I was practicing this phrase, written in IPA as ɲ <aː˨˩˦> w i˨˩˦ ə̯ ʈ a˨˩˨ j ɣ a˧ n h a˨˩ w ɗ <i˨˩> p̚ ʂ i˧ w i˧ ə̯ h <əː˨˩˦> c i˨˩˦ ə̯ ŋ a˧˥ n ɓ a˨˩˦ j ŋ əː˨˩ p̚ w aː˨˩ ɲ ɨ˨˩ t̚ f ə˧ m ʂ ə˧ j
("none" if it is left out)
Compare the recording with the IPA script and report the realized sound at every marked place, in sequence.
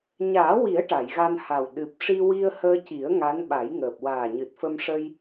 aː˨˩˦, ɨ˨˩, əː˧

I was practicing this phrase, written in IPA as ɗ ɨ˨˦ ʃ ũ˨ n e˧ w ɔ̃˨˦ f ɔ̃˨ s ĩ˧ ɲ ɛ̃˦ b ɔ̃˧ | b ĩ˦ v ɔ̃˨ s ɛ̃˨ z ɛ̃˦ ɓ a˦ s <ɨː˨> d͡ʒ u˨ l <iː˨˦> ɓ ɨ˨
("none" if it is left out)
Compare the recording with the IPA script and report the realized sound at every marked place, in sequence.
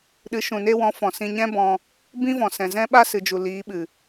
ɨ˨, iː˨˦

